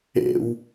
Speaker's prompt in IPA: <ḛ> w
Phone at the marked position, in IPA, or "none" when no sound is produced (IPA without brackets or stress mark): ḛ